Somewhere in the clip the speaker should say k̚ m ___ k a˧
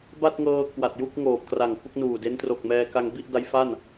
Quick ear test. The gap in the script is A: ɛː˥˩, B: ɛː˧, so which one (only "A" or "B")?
B